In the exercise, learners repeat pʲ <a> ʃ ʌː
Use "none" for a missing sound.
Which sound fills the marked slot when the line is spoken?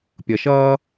ʌ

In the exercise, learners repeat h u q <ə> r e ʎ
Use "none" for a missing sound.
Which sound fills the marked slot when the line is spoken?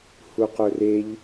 ɵ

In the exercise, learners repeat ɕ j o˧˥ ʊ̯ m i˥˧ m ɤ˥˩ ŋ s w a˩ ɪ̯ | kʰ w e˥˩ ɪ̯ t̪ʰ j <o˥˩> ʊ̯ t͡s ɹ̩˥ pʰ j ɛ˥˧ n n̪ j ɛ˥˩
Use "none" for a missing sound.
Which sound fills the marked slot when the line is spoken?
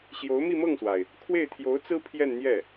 o˧˥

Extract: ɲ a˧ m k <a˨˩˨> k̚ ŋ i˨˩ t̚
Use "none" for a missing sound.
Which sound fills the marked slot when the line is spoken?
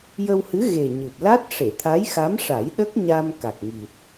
a˨˩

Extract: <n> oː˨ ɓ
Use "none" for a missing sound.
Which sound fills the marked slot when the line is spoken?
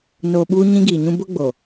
n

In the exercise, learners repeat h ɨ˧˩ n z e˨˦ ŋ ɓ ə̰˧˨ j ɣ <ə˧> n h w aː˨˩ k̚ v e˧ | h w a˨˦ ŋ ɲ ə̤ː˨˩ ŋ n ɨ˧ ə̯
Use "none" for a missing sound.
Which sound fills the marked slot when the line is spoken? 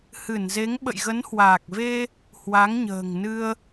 ə˨˦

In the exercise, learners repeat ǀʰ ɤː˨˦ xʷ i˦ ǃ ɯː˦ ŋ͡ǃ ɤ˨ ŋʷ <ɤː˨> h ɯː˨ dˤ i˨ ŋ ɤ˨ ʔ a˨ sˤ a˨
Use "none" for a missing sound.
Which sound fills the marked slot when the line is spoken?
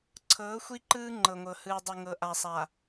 ɤ˨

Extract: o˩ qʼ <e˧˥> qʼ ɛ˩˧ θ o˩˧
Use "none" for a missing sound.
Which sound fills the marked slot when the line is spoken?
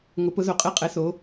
e˧˥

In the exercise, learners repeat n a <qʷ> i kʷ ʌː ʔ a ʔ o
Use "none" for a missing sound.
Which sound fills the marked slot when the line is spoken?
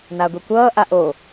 ɡʷ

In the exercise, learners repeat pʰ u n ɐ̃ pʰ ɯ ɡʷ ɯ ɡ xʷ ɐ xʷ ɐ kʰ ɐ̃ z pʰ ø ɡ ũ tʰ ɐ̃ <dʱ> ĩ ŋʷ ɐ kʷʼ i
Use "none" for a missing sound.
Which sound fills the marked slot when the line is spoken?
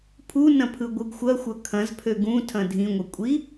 dʱ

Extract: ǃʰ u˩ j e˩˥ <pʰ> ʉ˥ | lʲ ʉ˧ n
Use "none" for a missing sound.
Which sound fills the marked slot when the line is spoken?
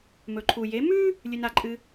m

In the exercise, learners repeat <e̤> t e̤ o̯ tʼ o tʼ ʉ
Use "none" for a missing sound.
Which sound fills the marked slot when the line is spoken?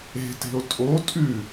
e̤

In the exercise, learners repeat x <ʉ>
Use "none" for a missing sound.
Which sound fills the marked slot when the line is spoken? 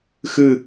ɨ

